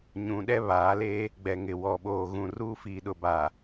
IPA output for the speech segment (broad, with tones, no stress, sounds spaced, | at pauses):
ɲ ũ˨ ɗ ɛ˦ β aː˨˦ l eː˦ | ɡ͡b ɛ˨ ŋ ɪ˨ w ɔ˨ ɓ oː˨ ɣ ũ˨ r uː˦ f iː˨ ɗ ʊ˨ b a˨